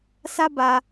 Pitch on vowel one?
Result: high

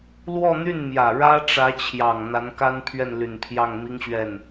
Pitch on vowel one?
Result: falling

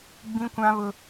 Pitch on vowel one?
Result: high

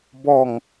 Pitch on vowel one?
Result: low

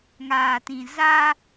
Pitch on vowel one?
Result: low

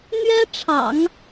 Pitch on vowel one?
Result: high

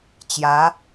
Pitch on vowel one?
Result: rising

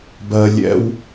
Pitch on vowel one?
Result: low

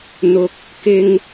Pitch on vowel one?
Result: low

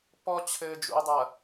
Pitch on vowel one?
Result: high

